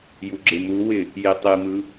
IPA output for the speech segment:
j u ɡ͡ǁ ɪ m u w ɪ | j i tˤ i m ɯ

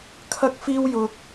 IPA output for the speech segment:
kʰ ɐ˥ k̚ f iː˥ w j ʊ˥ k̚

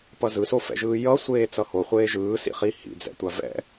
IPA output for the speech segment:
p ʌ z ɯ s o f ɛ̰ ʒ ɯː j ʌ sʷ eː t͡s ʌ h o χʷ eː ʒ ɯː s ḭ χ i h ḭ d͡z ɛ̰ tʷ a v ɛ̰

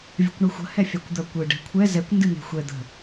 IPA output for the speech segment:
vʲ ə̤ kʷ ɳ ɨ xʷ ə̤ h ɛ fʲ a kʷ d̪ ɐ kʷ ɨ ɖ ɛ̤ kʷʰ ɛ z ɛ kʷ n d ɨ n̪ e̤ xʷ ɛ d̪ ə̤

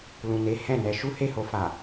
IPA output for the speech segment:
l ũ˨ n e˨˦ h ɛ̃˦˨ n ɛ˧ ʃ u˦ h e˦˨ h o˧ f a˨

